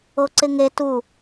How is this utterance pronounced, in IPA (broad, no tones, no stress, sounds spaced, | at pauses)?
o ǀ ɪ ŋ e t u